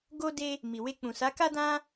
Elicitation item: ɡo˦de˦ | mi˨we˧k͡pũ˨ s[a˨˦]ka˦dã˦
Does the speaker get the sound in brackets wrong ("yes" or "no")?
no